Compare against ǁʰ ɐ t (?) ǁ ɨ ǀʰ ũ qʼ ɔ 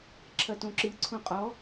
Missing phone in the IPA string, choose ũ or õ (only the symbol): õ